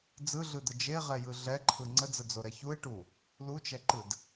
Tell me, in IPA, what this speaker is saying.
d͡zɯɮɯd̪ə d͡ʒeʁɛjɯ ɮɛǃʰɯ ŋ͡ǀəd͡zəd͡zoɾɛ çue̯ʈu | lut͡ʃɛǃɯd

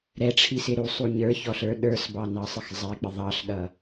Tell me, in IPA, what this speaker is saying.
ɾɛʈ͡ʂʰisɪ ɾusˤu ɲə˞çɔɬə˞ ɗə˞sbɑnɑsˤɪx zˤɛk͡pɪ ðˤɑɬɗʌ

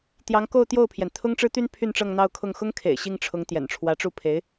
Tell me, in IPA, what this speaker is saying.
t̪jɑ˧˥ŋko˥˧ʊ̯t̪jo˥˩ʊ̯pʰjɛ˩n t̪ʰʊ˥ŋʈ͡ʂɻ̩˥t̪y˥n pʰy˥˧nʈ͡ʂɤ˥˧ŋn̪ɑ˥˧ʊ̯kʰʊ˥˩ŋ xʊ˥ŋkʰḛ˨˩ɪ̯ ɕi˥˩ŋʈ͡ʂʰʊ˧˥ŋ t̪jɛ̰˨˩nʈ͡ʂʰwä˧˥ʈ͡ʂu˥˩pʰe˧˥ɪ̯

